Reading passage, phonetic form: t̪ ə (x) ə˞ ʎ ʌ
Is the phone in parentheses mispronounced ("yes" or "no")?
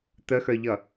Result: no